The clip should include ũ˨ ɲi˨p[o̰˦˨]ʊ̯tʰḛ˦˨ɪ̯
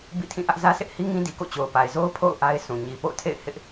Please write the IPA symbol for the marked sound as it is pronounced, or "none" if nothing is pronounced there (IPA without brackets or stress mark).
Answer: o̰˦˨